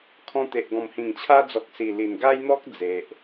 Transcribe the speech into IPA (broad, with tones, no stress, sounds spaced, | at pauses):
kʰ ɔ̃˧ t̪ e˨ ʔ ɡ ɔ̃˨˩ m h ĩ˨˩ ŋ t͡ɕʰ a˧ d͡z ɔ˨ k̚ s i˨˩ l i˨˩ n ɡ a˦ j n̪ ɔ˦ k̚ d͡z e˨ ʔ